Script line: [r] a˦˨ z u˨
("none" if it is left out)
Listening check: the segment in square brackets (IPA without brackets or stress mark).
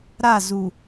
ɾ